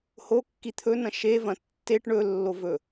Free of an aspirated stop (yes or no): no